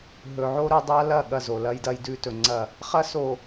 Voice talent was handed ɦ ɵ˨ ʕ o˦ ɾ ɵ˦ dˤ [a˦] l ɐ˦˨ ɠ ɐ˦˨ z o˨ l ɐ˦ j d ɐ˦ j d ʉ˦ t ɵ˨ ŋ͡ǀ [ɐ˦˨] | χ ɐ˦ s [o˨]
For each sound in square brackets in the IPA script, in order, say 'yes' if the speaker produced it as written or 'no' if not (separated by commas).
yes, yes, yes